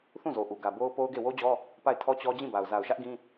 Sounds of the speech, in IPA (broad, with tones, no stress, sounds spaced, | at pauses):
θ ũ˦˨ z o˨ ʔ u˨ ɡ ä˨ b o˦ ʊ̯ p o˦ ʊ̯ ɡ e˦˨ w o˦ d͡ʑ ɔ˦ | p a˦˨ ɪ̯ tʰ ɔ˦ t͡ɕ ɔ˦ d͡ʑ ĩ˦˨ b a˨ ʊ̯ z a˨ ʊ̯ ʃ ä˦ ʔ ɡ ĩ˦